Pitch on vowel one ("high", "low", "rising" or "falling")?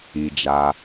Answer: low